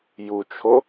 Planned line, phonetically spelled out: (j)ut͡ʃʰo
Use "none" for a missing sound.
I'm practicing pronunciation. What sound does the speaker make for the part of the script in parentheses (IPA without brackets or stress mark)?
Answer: j